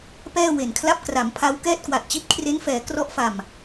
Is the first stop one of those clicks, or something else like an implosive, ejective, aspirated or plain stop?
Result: plain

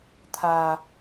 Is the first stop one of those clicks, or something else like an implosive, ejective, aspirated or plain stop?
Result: aspirated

